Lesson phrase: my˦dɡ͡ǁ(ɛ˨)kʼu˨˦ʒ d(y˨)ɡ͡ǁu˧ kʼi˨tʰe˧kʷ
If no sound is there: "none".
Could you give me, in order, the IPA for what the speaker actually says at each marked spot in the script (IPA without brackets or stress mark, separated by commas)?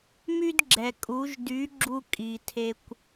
ɛ˨, y˨˦